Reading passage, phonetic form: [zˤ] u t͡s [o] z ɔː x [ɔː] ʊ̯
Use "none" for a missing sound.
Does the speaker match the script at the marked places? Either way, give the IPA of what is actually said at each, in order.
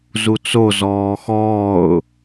z, o, ɔː

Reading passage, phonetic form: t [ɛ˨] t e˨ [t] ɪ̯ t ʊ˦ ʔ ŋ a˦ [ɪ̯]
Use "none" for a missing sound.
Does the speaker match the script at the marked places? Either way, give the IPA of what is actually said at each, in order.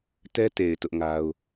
ɛ˦, none, ʊ̯

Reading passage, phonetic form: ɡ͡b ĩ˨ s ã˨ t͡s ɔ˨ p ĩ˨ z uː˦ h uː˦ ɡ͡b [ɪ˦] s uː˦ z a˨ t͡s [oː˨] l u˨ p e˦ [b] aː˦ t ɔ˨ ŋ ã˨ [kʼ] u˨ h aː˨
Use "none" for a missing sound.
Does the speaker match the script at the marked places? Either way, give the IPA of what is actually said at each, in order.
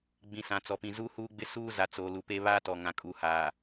ɪ˦, oː˨, β, kʼ

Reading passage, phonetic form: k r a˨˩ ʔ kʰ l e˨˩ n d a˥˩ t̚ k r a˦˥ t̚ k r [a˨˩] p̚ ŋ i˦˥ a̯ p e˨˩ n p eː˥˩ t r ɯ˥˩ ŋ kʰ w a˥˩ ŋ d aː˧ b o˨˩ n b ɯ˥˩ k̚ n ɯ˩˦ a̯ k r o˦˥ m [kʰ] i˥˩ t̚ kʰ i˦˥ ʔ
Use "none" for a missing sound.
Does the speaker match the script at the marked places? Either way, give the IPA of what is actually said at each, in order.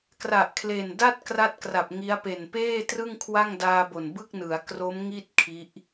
a˨˩, ŋ

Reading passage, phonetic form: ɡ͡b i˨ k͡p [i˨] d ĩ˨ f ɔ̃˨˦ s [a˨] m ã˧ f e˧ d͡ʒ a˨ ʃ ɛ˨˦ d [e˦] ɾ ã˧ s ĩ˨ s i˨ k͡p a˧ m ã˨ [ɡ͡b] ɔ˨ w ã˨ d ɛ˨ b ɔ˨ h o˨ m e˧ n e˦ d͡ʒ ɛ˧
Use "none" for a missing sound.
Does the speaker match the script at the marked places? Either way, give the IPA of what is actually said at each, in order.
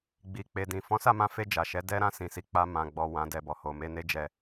e˨, a˦˨, ɛ˦, ɡ͡b

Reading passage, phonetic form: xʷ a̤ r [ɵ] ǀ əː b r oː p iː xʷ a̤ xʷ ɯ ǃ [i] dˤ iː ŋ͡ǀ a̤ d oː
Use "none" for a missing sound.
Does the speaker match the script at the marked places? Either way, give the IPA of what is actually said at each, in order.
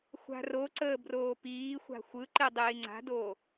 o, i

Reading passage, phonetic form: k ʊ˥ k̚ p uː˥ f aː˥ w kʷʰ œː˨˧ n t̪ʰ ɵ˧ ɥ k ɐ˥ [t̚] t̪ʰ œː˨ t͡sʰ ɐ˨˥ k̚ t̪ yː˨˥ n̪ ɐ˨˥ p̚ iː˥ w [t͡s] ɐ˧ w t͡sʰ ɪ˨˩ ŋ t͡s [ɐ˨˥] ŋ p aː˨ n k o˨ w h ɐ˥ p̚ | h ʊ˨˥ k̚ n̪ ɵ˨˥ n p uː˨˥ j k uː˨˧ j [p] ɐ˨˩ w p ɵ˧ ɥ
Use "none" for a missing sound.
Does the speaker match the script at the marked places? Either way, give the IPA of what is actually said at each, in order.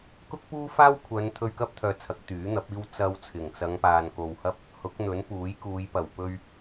p̚, t͡s, ɐ˨˧, p

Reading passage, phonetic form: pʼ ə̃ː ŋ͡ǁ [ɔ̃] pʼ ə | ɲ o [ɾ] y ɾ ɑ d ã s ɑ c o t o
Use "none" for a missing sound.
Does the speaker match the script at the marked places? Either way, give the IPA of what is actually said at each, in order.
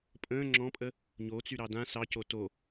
ɔ̃, t͡s

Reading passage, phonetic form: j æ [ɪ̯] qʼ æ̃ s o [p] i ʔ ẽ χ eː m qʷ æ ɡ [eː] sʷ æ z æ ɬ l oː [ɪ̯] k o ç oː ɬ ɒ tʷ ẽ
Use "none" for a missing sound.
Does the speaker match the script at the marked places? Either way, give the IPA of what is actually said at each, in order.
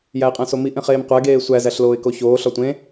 ɪ̯, m, eː, ɪ̯

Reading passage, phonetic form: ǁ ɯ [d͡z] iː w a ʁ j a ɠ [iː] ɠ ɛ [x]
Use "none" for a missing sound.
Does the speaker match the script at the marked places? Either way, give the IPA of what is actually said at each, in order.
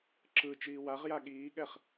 t͡ʃ, iː, χ

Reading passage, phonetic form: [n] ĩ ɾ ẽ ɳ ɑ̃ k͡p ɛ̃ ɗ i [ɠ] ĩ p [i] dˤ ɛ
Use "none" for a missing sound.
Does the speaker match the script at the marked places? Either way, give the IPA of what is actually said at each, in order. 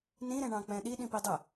n, ɗ, i

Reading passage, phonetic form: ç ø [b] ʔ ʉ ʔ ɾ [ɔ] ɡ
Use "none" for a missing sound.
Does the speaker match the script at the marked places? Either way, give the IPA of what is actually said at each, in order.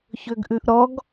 ɡ, ɔ

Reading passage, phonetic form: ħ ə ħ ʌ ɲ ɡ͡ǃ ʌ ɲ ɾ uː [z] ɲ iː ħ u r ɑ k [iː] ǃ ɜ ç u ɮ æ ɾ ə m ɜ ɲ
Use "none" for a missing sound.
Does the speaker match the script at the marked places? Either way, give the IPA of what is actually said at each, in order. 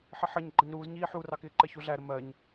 z, ɪː

